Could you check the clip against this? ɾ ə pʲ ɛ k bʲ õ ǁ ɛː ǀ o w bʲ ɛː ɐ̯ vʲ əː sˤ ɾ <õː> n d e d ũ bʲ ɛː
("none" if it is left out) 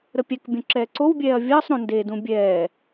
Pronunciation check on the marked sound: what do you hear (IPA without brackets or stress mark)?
õ